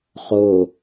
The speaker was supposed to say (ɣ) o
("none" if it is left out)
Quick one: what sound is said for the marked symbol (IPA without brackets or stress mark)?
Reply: χ